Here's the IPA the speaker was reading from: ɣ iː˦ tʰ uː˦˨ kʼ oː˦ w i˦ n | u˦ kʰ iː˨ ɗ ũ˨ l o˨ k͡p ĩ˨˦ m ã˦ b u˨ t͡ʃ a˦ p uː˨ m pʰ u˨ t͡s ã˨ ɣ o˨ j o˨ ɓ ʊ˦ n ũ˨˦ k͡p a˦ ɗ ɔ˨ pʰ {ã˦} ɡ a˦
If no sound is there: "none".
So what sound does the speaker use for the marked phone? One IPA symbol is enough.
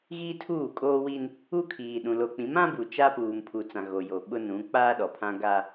ã˦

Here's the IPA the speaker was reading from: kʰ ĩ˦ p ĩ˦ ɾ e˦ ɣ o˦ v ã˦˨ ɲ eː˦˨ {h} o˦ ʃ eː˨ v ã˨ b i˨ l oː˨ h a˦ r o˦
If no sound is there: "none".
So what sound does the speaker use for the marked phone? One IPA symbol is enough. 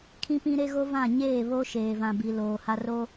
β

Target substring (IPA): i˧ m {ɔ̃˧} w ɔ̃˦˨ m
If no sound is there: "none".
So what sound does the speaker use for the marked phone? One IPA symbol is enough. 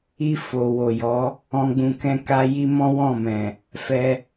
ɔ̃˦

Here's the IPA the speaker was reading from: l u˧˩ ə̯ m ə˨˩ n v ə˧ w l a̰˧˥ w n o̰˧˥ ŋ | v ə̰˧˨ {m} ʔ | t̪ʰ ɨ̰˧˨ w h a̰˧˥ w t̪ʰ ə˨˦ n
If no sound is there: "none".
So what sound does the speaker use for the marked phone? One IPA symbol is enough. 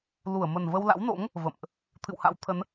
m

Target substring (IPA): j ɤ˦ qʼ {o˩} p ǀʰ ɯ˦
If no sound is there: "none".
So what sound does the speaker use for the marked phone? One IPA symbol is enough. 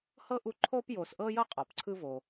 ɔ˩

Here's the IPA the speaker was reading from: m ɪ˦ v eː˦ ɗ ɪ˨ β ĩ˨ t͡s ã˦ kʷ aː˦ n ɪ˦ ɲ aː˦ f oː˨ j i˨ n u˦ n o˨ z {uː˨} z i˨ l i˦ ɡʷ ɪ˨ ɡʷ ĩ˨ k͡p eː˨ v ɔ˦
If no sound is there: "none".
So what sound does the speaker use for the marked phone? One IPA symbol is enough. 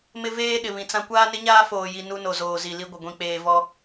oː˨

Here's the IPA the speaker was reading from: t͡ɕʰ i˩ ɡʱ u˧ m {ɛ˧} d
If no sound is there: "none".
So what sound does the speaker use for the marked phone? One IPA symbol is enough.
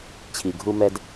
ɛ˧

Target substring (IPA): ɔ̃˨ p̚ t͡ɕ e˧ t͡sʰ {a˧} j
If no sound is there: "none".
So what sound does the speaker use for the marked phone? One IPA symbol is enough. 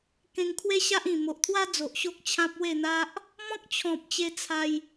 a˧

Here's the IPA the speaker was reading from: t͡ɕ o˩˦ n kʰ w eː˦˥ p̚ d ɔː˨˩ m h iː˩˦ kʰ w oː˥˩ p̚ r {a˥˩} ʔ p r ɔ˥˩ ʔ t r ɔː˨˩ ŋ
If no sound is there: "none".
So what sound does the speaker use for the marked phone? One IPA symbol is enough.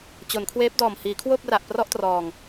a˨˩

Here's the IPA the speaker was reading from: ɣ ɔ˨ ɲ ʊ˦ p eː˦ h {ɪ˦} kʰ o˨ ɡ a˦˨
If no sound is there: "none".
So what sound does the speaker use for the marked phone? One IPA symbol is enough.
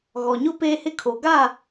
ɪ˦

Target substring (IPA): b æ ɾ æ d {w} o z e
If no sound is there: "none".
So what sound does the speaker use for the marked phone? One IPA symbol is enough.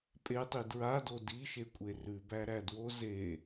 w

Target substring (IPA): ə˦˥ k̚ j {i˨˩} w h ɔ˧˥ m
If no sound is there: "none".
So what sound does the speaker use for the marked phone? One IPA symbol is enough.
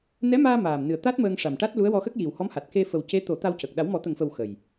i˨˩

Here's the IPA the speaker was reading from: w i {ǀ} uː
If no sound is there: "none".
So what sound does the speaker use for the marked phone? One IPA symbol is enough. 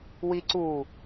ǀ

